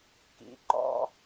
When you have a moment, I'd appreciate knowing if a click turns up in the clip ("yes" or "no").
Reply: yes